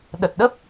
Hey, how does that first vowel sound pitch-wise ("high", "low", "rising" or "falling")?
low